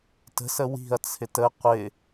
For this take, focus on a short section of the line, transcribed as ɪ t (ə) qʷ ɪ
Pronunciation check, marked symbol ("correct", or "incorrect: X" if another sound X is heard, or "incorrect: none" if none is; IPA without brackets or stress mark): correct